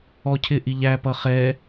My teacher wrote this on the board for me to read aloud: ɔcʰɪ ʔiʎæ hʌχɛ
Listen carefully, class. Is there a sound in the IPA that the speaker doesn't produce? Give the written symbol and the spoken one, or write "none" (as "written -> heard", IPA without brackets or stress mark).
h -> p